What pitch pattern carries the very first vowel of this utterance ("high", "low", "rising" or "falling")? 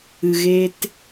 low